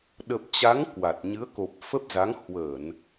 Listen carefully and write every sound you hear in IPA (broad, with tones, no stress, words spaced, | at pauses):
ɗə˨˩p̚t͡ɕa˨˦ŋ kwa˨˩t̚ ɲɨ˨˦ə̯ko˨˩p̚fə˦˥p̚ za˨˦ŋhwəː˧˩˨n